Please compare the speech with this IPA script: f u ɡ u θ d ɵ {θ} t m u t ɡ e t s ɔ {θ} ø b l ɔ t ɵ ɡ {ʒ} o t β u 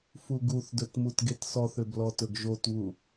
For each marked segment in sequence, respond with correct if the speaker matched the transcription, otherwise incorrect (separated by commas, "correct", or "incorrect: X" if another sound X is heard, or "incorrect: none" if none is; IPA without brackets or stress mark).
incorrect: none, correct, correct